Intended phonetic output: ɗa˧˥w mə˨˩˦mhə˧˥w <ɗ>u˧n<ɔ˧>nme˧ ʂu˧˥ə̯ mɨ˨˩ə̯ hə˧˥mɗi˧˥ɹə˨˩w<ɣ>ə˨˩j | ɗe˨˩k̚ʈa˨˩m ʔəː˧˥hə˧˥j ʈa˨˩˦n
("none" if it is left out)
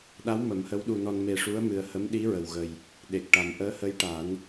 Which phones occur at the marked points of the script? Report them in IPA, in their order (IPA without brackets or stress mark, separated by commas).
ɗ, ɔ˧, ɣ